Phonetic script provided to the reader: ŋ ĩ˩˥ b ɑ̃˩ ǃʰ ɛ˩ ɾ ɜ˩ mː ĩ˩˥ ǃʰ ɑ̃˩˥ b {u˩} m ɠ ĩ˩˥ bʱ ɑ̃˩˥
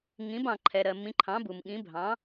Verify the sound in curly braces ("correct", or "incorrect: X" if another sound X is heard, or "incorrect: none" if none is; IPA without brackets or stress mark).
correct